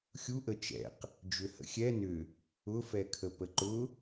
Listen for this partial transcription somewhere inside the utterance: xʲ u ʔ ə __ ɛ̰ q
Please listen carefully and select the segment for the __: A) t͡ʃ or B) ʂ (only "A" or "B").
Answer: A